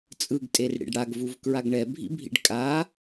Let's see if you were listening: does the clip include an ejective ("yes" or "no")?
yes